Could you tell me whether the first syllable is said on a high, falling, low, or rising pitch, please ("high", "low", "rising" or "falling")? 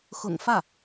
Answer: low